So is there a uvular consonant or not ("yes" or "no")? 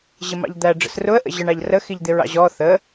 no